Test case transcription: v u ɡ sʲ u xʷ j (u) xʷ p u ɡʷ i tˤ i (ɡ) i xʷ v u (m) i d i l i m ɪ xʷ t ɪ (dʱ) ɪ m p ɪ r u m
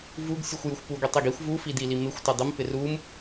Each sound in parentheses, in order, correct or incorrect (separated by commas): correct, correct, incorrect, incorrect